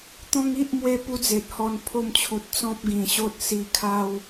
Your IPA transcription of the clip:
t̪ ɔ̃˦ ŋ i˦ ʔ m w e˧ p u˦ d͡z e˨ t̚ h ɔ˧ n pʰ o˥˧ m t͡ɕʰ u˨ t̚ t͡s ɔ̃˦ p̚ ɡ ĩ˨˩ ɕ o˦ t̚ s i˧ kʰ a˦ w

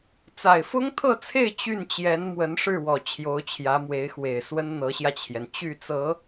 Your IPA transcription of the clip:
t͡s a˨˩ ɪ̯ f ʊ˥ ŋ t̪ʰ ɤ˥˧ t͡sʰ e˥˧ ɪ̯ t͡ɕ y˥˩ n t͡ɕ j ɛ˧˥ n m w ə˧˥ n ʂ ɻ̩˥˩ w ɔ˨˩ t͡ɕʰ j o˧˥ ʊ̯ t͡ɕʰ j ä˧˥ m w e˧˥ ɪ̯ x w e˨˩ ɪ̯ s w ə˥ n n̪ ɤ˧˥ ɕ j ä˧ t͡ɕʰ j ɛ˩ n t͡ɕ y˥˩ t͡s ɤ˧˥

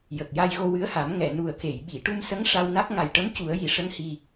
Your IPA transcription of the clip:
j ə˨˩ k̚ j a˧ j ɣ o˧ w ɨ˧˥ ə̯ h a˨˩˦ m ŋ ɛ˨˩˨ n u˨˩ ə̯ k e˨˩˨ j ɓ i˨˩˨ ʈ u˧ m s ə˧˥ ŋ ʂ a˧ w n a˦˥ k̚ ŋ a˨˩ j ʈ ə˧˥ m c u˨˩˦ ə̯ j i˨˩˨ ʂ ə˧˥ ŋ h i˨˩

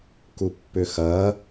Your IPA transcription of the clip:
k u pː ʏ x ɐ

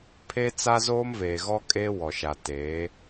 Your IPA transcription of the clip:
pʰ e˦ t͡s a˦ z oː˦ m v eː˨ ɣ ɔ˦ kʼ eː˦ w ɔ˨ ʃ a˨ t eː˨˦

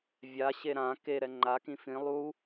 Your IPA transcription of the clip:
vʲ a ɕ e ɾ ã k e ɾ ɛ ŋ͡ǃ a k ĩ f ĩ lˠ u

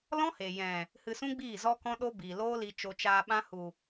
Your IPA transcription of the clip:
l ɔ̃˦ h e˨ j ɛ̃˨ | h ɨ˧ s ũ˦ ɡ͡b iː˦˨ z ɔ˦ k ɔ̃˦ ɗ o˦ b iː˨ l oː˦ l i˧ t͡ʃ o˧ t͡ʃ aː˧ ɓ ã˦ h u˨

